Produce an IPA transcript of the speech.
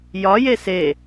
j ɒ j e s e

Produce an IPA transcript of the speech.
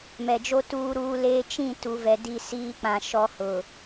m ɛ˨ d͡ʒ o˦ t uː˦ ɾ uː˦ l eː˦ t͡ʃ ĩ˦˨ t u˨ v ɛ˨ d i˦˨ s iː˦ k͡p ã˨ ʃ ɔ˦ h ʊ˨

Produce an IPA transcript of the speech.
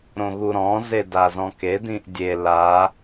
ɾ õ ɣ u ɾ ɔ̃ z e d a z ɔ̃ k e d ĩ ʔ dʲ e l a

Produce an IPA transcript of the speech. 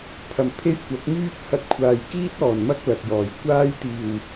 pʰ ɐ˨ m pʰ e˥ j kʷ ɐ˨˥ k̚ m yː˥ t̚ h ɐ˧ t̚ kʷʰ aː˨ j k iː˥ t̚ ɔː˨˩ n m ɐ˥ k̚ l ɐ˨ k̚ j ɔː˨˩ j kʷ aː˥ j t̪ iː˨˩ w

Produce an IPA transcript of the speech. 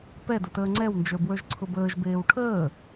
p ɛ d ə t əː ŋ͡ǀ ɛ w n d͡ʒ ə˞ b w ə˞ ʒ ǀʰ ʊ b əː ʒ b eː w ʈʰ əː

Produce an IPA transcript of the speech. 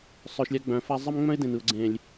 sˤ œ˧ ʃ lʲ a˦ ɡ͡b œ̃˨˦ f a˦ zˤ ə˦ m ŋ͡m œ̃˦ ɪ̯ d ẽ˨ n ɯ˨ ʊ̯ ɡ͡ǀ ẽ˨ lʲ

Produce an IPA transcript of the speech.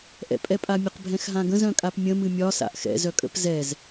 ʔ ɛ̰ pʼ ɛ pʼ a mʲ ə q bʱ ɛ̃ x ɦ ã ɡ ə̃ z œ̃ kʼ a p mʲ ə̃ m ɨ mʲ ɒ s a̰ ʔ x ɛ̰ z œ kʼ ə̰ p z ɛ z

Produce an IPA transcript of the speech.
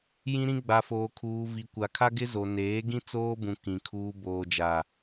j ĩ˦ ɾ ĩ˦ ɡ͡b a˨ f oː˨ kʰ uː˨ v i˨ kʷ a˨ kʰ a˦ ɡ ɪ˦ z o˨ n eː˨˦ ɡ ĩ˦ t͡s oː˦ b ũ˨ k ĩ˨ kʰ uː˨ b oː˨ d͡ʒ a˨

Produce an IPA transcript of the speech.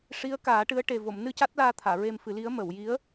ʂ i˧˥ ə̯ k aː˨˩˦ ʈ ɨ˧˥ ə̯ ʈ e˨˩ v o˨˩˨ m n ɨ˧ c a˦˥ t̚ l aː˧ t̪ʰ aː˨˩˨ ɹ e˧ m f ɨ˨˩˦ l i˧˥ ə̯ m ə˨˩˨ w j i˧˥ ə̯

